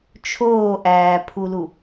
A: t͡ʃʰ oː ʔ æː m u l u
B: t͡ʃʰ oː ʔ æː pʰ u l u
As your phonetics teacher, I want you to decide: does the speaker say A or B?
B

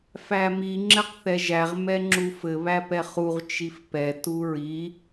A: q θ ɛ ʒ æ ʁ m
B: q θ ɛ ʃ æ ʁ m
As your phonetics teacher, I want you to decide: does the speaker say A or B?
A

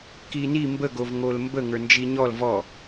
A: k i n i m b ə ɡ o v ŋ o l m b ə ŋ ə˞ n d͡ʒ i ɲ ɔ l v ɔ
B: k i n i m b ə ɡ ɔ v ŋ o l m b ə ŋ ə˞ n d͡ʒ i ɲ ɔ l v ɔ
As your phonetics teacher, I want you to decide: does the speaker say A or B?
A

